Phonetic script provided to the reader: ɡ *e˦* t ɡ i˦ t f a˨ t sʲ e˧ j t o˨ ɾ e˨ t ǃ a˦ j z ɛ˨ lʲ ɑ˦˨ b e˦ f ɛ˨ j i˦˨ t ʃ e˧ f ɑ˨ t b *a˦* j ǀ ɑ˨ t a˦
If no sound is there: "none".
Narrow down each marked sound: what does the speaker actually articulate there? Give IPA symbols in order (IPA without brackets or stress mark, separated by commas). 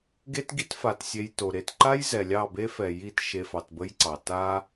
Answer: e˦, ə˦